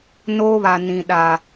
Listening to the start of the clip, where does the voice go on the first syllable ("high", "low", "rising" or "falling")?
high